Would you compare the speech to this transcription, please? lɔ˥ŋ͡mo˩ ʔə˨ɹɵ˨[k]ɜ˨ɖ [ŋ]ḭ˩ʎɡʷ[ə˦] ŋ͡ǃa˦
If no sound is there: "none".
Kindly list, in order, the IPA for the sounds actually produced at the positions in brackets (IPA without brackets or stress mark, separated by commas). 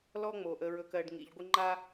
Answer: k, ŋ, ə˦